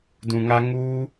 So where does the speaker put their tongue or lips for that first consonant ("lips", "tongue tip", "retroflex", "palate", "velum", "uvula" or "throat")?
tongue tip